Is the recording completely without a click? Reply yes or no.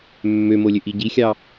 yes